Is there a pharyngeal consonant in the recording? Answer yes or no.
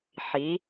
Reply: yes